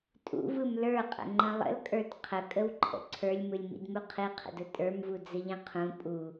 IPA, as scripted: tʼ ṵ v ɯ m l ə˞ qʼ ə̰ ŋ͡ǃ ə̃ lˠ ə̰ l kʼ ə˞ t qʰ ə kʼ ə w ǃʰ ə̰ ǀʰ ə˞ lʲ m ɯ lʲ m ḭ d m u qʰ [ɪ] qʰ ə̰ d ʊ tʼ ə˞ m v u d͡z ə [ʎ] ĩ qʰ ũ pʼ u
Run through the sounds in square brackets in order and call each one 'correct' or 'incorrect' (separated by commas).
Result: incorrect, correct